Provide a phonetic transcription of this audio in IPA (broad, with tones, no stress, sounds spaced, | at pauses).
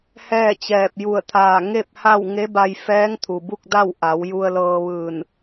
h ɛː˥˨ t͡ɕ ɛː˧˩ p̚ j u˧˩ ə̯ t̪ʰ aː˧˩ ŋ e˥˨ p̚ h a˥˨ w ŋ e˧˥ b a˧ j f ɛː˧˥ ŋ t̪ʰ u˩ b u˥˨ k̚ d a˥˨ w ʔ a˩˧ w j u˧ ə̯ l ɤː˧ ʋ ɯː˧˩ n